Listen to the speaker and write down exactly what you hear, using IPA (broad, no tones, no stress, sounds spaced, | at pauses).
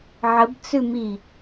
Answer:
ʕ ə b t͡s ʉ m i